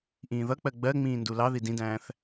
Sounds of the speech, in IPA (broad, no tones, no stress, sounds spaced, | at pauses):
ʔ ĩː ð ʌ k͡p ɜ ɡ͡b ɜ ŋ͡m ĩː n d u l ɑ ð i d ĩ d æ̃ː θ